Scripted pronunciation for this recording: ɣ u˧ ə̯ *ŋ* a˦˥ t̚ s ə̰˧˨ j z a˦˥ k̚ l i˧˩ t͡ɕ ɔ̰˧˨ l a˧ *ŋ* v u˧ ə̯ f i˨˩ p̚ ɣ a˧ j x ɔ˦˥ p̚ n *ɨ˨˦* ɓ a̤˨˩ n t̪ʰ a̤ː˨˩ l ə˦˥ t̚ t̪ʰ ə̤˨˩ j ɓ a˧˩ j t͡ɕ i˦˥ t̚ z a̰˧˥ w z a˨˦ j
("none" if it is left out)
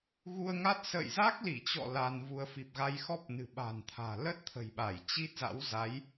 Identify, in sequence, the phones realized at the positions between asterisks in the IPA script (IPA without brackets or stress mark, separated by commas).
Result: ŋ, n, ɨ̤˨˩